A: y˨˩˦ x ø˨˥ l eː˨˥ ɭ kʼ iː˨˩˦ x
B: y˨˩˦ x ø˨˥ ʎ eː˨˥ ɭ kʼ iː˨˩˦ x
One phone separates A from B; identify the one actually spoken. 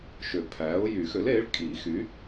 A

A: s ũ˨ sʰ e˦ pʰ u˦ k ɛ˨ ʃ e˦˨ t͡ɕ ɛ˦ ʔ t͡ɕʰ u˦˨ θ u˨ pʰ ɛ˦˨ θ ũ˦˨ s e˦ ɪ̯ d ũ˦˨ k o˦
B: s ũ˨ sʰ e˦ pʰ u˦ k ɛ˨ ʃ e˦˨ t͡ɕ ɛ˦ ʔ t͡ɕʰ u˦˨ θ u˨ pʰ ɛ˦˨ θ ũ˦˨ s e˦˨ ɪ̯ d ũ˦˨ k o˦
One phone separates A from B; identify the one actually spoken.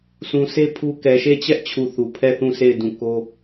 B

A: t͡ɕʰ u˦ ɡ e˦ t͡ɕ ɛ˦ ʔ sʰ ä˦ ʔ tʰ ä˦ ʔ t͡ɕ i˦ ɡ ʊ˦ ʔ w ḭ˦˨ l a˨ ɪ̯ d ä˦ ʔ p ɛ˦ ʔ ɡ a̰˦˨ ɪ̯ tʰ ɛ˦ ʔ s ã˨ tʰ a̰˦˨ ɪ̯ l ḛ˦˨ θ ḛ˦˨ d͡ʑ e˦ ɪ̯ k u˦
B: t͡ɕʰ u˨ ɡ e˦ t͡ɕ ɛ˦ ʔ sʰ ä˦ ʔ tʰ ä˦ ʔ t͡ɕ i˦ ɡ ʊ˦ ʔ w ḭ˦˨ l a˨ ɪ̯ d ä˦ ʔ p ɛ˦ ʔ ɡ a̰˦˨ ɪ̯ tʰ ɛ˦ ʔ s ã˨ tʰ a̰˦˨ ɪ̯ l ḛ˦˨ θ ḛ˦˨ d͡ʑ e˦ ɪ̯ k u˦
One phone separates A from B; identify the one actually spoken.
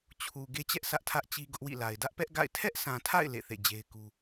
B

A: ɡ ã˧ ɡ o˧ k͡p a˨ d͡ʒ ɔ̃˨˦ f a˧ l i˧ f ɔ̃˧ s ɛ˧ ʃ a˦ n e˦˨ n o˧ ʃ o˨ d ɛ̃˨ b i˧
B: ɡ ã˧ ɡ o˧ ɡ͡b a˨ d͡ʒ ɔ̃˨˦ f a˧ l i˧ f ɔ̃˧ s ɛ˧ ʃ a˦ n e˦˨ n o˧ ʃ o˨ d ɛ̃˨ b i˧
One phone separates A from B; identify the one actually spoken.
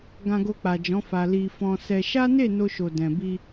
A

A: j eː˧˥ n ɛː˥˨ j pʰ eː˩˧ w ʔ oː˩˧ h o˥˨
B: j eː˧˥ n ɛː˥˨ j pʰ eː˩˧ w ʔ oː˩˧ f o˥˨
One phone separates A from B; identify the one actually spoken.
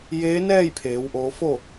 B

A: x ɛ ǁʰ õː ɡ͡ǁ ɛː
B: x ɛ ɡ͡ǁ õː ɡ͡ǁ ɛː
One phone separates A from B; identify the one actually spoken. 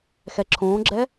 A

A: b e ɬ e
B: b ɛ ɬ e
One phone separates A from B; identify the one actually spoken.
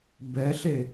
B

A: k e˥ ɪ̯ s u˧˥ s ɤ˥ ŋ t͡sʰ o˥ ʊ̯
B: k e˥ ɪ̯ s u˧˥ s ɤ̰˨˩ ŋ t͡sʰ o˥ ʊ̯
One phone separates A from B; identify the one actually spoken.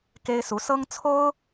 A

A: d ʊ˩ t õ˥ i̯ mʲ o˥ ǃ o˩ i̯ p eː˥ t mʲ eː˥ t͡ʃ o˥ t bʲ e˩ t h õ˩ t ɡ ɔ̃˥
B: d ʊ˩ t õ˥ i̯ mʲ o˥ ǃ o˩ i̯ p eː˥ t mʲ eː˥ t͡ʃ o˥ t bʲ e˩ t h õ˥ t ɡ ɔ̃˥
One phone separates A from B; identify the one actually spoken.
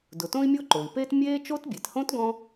B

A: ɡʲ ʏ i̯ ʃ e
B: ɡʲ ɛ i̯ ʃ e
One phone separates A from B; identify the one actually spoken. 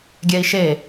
B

